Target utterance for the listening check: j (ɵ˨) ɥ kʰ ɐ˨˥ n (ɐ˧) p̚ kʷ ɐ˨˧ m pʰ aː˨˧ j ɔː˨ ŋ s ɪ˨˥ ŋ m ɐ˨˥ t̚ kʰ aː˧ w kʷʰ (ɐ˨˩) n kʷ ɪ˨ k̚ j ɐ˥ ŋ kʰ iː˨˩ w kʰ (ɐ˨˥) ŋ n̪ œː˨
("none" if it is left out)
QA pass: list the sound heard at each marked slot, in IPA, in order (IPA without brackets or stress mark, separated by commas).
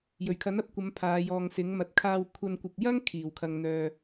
ɵ˨˩, ɐ˧, ɐ˧, ɐ˨